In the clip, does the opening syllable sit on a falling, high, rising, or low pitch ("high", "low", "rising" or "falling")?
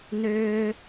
high